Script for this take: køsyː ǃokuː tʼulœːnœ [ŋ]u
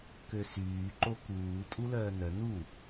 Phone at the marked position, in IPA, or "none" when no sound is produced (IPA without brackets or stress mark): n